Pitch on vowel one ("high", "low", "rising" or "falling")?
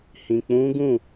low